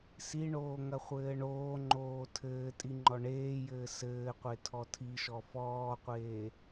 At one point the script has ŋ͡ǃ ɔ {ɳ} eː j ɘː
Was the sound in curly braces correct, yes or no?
yes